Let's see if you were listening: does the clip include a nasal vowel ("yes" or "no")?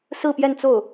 no